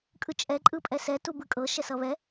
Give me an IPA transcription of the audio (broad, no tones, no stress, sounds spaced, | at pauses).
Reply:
kʼ ɯ t͡ʃʼ ɛ ǃʼ ɯ pʼ ɛ s ɛ t u b ɯ kʼ ɤ ʃ ɛ s ʌ β ɛ